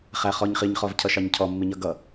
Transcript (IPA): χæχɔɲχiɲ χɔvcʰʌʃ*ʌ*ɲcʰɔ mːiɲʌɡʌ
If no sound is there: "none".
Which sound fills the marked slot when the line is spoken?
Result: ɑ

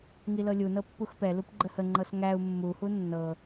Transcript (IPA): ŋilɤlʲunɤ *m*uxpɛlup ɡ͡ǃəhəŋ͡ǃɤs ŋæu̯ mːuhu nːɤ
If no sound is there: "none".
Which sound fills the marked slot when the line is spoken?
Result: pː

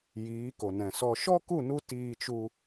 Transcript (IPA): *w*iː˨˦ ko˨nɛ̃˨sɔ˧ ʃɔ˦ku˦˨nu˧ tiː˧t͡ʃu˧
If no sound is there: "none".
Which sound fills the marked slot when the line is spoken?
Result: j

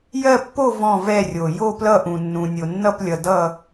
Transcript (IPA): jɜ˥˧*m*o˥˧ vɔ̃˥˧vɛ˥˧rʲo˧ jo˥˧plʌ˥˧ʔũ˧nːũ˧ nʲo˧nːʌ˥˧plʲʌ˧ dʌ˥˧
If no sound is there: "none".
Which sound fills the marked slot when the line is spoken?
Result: pː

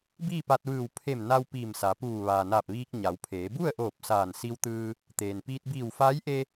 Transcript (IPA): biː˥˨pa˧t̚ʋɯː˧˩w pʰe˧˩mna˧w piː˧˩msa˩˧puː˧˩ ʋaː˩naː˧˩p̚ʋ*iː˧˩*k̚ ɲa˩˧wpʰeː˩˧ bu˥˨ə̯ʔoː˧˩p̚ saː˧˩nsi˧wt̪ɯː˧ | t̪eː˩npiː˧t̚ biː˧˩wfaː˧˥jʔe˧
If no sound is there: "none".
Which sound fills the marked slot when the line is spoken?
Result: iː˧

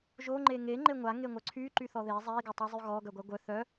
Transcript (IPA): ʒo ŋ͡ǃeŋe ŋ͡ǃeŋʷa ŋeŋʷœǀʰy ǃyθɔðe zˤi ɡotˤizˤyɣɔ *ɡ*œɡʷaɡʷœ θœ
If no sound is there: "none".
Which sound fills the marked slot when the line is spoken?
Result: ɡ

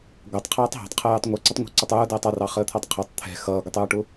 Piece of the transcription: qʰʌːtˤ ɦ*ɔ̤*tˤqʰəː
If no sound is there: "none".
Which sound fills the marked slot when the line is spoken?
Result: ɑ̤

